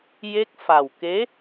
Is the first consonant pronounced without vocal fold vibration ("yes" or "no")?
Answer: no